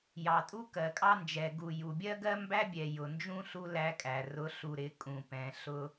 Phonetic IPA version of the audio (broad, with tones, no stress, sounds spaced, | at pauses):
j ɑ˨ tʼ u˦ k ɜ˨ kʼ ɑ˦ n d͡ʒ ɛ˨ ɡ u˨ j u˨ bʲ ɜ˦ ɡ ɜ˦ m b æ˦ bʲ ɛ˨ j ʊ˨ n d͡ʒ ũ˦ ɬ u˦ l æ˦ kʼ æ˨ r ʊ˨˦ ɬ u˨ ɾ ɪ˨ kʼ ũ˨ p ɛ̃˨ ɬ ʊ˦